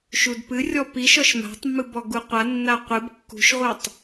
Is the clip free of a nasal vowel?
yes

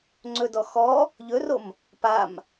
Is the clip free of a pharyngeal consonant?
yes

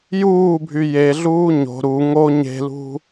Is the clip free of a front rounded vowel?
no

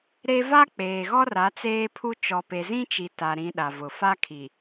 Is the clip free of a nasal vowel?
no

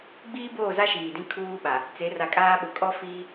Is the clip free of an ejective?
no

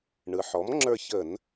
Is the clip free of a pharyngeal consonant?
no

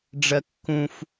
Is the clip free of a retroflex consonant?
no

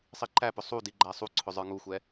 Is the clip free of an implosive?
yes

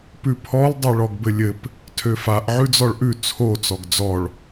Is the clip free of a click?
yes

